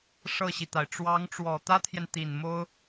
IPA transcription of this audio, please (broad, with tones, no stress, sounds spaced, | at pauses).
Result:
ʂ ɤ˥˩ ɕ i˩ t̪ a˩ ɪ̯ ʈ͡ʂ w ɑ˧˥ ŋ ʈ͡ʂ w ɔ˨˩ t̪ ä˥ t̪ʰ j ɛ˨ n t̪ i˨˩ n m o˥ ʊ̯